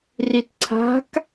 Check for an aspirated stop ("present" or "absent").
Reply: present